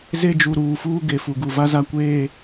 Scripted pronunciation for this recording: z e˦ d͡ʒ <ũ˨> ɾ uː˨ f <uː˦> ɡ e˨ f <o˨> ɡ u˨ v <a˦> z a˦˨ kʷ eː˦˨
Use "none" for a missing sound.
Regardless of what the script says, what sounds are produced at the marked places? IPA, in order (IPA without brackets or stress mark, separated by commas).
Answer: u˨, uː˦, u˨, a˦